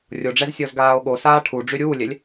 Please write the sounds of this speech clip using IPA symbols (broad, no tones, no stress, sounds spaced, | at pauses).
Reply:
rʲ o ɖ͡ʐ ɛ z sʲ ɔ z ɡ aː o̯ ɠ o s aː ʈʰ u ɖ͡ʐ y ɾʲ uː lʲ ɛ lʲ